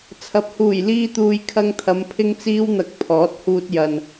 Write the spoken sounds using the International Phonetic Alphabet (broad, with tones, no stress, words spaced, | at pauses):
t͡sʰɐ˨˥p̚huː˨˩j liː˧t̪uː˨j kʰɐ˧ŋt̪ʰɐ˨˧m pʰɪ˥ŋt͡siː˥wn̪ɐ˨˥k̚ pʰɔː˨˥t̚huː˧t̚jɐ˨n